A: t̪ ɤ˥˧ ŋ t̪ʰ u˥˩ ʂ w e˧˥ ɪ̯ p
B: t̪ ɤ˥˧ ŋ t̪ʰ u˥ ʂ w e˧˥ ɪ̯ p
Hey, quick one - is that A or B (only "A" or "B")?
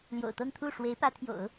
A